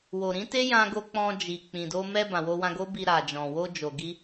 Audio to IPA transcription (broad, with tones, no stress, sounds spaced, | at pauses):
w o˨ ɾ ĩ˨˦ t e˦ j ã˧ ɡ o˧ k͡p ɔ̃˧ d͡ʒ i˨ k͡p ĩ˨ d o˧ m ɛ˧ b ã˨ w o˧ w ã˧ ɡ o˦ b i˧ ɾ a˨ d͡ʒ ɔ̃˨ w o˧ d͡ʒ o˨ ɡ i˧